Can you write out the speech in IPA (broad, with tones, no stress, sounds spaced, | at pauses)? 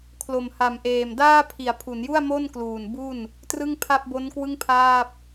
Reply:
kʰ l o˨˩ m h a˨˩ m ʔ eː˨˩ m d aː˥˩ pʰ i˩˦ a̯ pʰ u˩˦ n j u˥˩ a̯ m o˥˩ n k l uː˨˩ n b u˥˩ n | t r ɯ˥˩ ŋ pʰ a˥˩ p̚ b o˦˥ n k w ɯ˥˩ ŋ pʰ aː˥˩ p̚